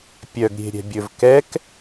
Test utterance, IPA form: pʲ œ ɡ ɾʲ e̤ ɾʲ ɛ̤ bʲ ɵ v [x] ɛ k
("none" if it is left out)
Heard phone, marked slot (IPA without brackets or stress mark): k